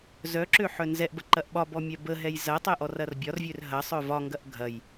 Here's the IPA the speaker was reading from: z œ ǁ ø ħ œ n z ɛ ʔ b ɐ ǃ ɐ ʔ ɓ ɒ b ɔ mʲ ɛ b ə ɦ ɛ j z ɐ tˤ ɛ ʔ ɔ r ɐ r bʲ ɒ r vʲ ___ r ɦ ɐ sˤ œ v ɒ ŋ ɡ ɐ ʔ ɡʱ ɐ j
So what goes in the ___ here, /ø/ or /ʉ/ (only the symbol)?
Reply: ø